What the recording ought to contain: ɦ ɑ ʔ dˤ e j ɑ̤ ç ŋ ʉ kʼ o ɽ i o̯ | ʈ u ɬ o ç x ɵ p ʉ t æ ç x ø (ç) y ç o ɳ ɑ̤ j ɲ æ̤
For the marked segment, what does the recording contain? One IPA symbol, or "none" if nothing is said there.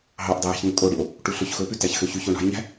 ç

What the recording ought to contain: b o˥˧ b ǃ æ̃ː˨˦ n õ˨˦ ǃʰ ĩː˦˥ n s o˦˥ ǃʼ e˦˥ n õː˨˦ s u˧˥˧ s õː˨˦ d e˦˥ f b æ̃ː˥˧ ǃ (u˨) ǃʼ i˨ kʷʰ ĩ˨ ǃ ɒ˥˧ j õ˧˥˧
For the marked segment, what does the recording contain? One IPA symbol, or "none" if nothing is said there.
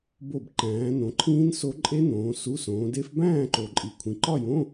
o˨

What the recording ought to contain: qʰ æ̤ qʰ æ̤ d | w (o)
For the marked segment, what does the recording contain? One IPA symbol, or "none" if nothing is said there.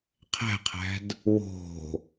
o̤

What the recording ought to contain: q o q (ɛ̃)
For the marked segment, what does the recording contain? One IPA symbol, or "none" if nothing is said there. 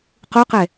ɛ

